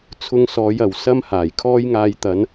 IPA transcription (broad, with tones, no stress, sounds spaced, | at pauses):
t͡sʰ ʊ˧ ŋ s ɔː˨˧ j ɐ˨˩ w s ɐ˥ m h aː˨˩ j kʰ ɔː˥ j ŋ aː˧ j t̪ ɐ˨˧ n